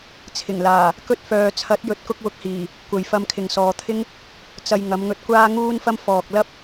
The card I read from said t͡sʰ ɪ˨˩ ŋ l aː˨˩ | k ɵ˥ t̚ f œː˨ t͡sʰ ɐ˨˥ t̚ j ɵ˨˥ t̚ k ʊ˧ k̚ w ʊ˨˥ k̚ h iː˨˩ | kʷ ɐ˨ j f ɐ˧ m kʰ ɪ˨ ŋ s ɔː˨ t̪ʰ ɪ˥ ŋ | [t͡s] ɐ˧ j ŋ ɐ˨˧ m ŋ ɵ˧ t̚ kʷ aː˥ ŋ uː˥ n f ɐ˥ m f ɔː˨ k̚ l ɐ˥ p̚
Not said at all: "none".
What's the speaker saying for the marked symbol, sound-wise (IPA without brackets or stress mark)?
t͡s